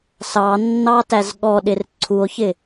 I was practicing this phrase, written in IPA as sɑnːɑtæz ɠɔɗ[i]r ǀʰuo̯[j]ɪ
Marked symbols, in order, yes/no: no, no

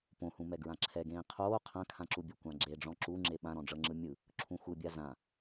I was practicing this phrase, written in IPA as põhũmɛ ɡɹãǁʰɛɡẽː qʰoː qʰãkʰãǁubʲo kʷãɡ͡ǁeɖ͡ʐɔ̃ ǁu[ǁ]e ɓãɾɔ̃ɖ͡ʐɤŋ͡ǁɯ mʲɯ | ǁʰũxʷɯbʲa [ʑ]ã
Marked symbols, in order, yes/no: no, no

